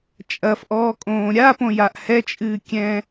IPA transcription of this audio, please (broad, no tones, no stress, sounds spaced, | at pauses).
t͡ʃʼ ɐ f ʔ ɔː kʼ õː ɾʲ a p õ j a ʔ h ɛ t͡ʃʼ ɨː kʲ ɛ̃